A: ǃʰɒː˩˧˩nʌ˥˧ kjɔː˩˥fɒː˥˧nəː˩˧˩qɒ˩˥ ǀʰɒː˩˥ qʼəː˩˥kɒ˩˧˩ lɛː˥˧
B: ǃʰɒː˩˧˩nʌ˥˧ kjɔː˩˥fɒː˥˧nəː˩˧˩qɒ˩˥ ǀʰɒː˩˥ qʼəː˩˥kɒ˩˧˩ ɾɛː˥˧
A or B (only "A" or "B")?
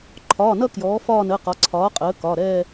B